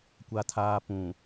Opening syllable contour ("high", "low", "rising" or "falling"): high